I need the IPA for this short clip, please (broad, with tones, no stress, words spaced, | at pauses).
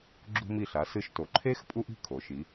ɡ͡ǁṳ˧mi˧˩ɬa˩˧ sɨ˧ʃto˩˧ ǃʰe˥x pʼu˥ʔi̤˥˧kʰo˩˧ʃi˩˧